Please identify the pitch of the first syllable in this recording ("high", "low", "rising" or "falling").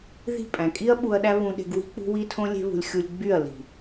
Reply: falling